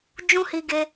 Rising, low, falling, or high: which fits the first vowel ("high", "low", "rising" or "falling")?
high